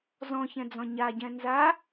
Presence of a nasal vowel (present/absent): present